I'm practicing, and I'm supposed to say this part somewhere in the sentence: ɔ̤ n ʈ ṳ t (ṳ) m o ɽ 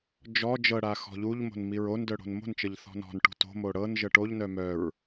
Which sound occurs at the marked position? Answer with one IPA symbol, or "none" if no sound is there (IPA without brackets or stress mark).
o̤